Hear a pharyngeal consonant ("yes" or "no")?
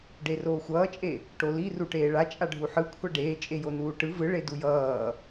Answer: yes